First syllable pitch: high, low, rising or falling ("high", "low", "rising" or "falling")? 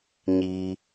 high